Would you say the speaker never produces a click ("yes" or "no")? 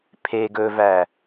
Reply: yes